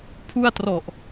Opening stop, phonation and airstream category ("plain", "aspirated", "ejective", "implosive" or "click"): aspirated